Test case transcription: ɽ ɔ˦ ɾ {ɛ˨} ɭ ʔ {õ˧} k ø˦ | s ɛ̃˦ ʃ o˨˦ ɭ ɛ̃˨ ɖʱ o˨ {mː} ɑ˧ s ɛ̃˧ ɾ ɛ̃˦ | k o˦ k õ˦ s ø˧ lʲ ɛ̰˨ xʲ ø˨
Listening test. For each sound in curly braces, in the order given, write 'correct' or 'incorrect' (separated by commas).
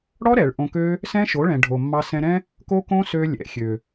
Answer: correct, correct, correct